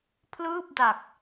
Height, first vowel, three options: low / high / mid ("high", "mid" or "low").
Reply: high